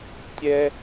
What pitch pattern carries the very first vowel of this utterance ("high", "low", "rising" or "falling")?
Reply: high